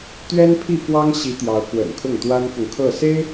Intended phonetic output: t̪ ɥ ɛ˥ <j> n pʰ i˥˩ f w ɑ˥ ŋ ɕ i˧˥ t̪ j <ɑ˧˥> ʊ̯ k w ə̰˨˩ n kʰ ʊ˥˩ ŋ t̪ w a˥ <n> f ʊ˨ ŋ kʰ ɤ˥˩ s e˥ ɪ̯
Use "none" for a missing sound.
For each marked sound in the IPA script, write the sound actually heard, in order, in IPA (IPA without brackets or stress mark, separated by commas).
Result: none, ɑ˧˥, n